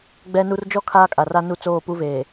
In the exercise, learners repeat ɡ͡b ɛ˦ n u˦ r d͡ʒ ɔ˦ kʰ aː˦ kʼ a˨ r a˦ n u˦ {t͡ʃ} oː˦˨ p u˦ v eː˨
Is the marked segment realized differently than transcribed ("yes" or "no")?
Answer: yes